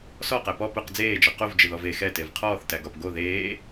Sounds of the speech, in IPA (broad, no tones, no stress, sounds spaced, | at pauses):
s ɔ q æ p ɔ p ʊ q d͡z eː d͡ʒ ɒ q o v d͡ʒ ɪ ð ɔ v e x ɛ t e v qʰ ɔː θ t æ ɡ ɒ p ɡ o ð eː